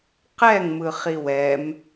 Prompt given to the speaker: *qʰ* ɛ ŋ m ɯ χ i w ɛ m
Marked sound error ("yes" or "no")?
yes